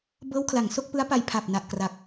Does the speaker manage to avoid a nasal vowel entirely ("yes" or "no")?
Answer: yes